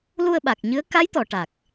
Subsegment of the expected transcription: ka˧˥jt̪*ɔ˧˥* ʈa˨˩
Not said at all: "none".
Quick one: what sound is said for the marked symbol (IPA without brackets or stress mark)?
ɔ˨˩˨